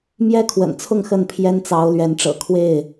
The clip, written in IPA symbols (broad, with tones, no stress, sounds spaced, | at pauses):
m j ɛ˦ kʰ w ə̰˨˩ n t͡sʰ ʊ˥˨ ŋ x ə˥˨ n pʰ j ɛ˦ n t͡s ɑ˨˦ ʊ̯ l ɥ ɛ˨˦ n ʈ͡ʂ ɤ̰˨˩ kʰ w e˥˨ ɪ̯